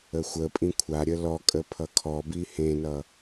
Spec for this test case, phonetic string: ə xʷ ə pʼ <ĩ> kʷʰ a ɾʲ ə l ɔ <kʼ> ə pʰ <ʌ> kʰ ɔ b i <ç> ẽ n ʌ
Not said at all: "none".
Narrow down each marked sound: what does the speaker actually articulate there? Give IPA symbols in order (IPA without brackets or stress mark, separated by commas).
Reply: ĩ, kʼ, ʌ, h